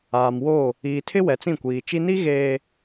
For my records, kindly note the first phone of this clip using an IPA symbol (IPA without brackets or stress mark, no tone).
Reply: aː